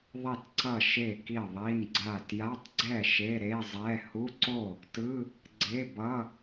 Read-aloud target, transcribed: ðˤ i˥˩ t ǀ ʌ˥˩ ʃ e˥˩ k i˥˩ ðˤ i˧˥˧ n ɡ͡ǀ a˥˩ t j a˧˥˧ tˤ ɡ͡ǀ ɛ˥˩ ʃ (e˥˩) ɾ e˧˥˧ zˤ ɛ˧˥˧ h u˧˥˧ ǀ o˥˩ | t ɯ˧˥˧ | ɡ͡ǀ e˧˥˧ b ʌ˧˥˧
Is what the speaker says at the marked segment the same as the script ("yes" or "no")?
no